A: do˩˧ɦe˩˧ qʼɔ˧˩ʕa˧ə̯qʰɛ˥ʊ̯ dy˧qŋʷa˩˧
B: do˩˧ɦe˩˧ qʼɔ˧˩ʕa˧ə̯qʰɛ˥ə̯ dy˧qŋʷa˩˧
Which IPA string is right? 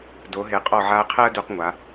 B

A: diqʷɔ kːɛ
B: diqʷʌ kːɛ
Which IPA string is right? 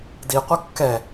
B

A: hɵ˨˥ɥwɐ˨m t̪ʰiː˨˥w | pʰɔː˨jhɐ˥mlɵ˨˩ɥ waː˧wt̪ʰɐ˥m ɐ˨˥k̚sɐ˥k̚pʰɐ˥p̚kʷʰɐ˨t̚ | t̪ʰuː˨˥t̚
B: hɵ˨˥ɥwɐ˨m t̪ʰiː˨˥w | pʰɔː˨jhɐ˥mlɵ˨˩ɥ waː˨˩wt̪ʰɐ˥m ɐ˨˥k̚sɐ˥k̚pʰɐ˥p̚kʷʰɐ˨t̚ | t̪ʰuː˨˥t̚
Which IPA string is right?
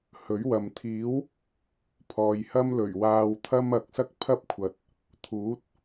A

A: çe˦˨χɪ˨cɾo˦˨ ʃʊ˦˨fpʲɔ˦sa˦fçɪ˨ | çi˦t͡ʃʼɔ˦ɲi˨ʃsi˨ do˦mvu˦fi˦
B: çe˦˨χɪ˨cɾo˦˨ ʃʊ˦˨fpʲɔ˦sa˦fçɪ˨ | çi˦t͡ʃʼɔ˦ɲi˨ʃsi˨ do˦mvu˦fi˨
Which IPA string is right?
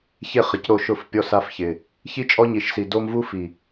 B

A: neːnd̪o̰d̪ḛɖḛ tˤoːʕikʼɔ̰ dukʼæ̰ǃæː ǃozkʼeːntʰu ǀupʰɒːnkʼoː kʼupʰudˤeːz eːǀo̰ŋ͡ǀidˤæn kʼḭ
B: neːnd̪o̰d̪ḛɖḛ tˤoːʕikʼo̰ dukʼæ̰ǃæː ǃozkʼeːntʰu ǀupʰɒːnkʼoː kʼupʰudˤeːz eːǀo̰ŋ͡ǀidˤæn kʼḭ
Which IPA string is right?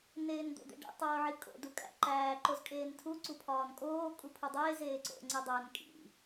B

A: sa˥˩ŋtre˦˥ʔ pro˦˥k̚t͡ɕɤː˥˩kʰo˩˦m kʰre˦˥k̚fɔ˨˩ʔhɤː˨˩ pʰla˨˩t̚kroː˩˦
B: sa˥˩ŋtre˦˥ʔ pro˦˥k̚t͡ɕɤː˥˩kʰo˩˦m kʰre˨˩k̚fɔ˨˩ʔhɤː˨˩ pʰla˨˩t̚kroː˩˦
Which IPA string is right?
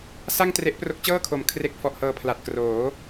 B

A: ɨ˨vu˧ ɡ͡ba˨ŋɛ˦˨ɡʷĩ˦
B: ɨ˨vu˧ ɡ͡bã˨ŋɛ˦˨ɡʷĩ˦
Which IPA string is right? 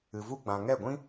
B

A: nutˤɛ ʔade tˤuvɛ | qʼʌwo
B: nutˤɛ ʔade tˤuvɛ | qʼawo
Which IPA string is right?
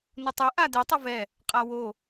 B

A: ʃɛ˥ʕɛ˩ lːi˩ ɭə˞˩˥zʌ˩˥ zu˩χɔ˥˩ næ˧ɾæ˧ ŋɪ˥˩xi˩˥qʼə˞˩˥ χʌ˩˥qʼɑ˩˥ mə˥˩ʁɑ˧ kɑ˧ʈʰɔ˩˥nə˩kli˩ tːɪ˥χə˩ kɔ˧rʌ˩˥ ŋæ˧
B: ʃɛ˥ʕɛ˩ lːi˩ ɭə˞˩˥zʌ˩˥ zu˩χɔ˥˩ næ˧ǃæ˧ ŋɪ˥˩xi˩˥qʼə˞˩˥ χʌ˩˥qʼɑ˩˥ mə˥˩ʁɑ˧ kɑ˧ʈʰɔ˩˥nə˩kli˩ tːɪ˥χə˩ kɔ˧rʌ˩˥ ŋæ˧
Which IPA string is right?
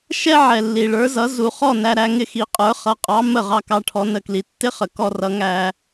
A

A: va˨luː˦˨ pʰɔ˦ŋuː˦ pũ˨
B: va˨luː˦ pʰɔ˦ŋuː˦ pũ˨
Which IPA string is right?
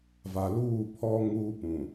A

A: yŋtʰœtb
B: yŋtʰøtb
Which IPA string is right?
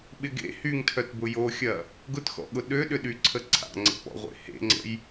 A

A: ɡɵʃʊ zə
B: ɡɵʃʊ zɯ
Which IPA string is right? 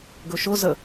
A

